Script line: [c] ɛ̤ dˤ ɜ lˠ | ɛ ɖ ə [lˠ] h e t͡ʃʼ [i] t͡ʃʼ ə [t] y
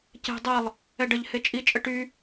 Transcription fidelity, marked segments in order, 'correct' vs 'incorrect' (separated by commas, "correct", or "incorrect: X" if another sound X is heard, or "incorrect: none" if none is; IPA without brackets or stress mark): correct, incorrect: ʎ, correct, incorrect: ʈ